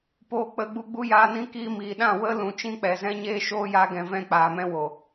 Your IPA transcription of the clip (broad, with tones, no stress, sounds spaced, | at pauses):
p oː˨ k͡p ə˨ ɡ͡b u˧ ɡ͡b u˦ j aː˧ n ĩ˦ k iː˧ m iː˨ ɗ ã˦˨ w ə˦ l ũ˨ t͡ʃ ĩ˦ k͡p ɛ˨ z ɛ̃˦ ɲ eː˦ ʃ oː˦ j a˦ ɡ ɛ̃˧ v ɛ̃˦ k͡p aː˨ m ɛ̃˦ w o˨